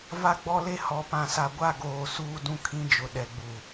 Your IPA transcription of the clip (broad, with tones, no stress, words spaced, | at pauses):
va˦ɡ͡bɔ˦le˦ hɔ˨pã˨sa˨ ɡʷa˦˨ɡoː˨ suː˦dũ˦ kʰĩ˦d͡ʒʊ˨ ɗɛ˨ɡ͡bu˨